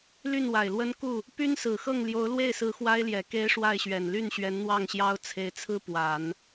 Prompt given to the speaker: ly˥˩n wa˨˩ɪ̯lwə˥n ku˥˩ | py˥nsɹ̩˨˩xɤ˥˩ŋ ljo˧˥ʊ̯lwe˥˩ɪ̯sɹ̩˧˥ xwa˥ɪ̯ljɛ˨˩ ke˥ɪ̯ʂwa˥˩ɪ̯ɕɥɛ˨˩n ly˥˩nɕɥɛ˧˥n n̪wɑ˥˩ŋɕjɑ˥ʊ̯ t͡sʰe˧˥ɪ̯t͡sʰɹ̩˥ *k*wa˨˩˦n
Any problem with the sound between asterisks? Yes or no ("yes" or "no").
yes